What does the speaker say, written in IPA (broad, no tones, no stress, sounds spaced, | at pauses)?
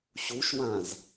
ɕ u ʃ w ã z